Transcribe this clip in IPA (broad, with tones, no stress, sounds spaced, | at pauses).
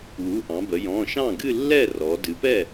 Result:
w u˩˧˩ ʔ ɑ̃˩˧ b ə˩˧ j ɔ̃˩˧˩ ʃ ɑ̃˥˩ ɡ ɨ˥˧ lː ɛ˥˩ r ɔ˩˧ d ɨ˩˧ p ɛ˥˩